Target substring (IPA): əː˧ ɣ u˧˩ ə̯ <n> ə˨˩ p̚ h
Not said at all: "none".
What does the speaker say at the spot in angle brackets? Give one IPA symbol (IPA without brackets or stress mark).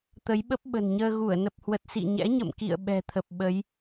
n